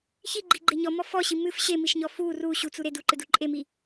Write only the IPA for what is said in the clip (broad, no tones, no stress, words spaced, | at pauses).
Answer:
çiɡ͡ǃiɡ͡ǃe ɲɔmɔ fɔɕi mɨf ɕemiʃɲɔ fu ru ɕut͡su ɾed uǃɨdu ǃʼemi